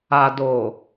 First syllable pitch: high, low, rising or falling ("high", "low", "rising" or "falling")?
low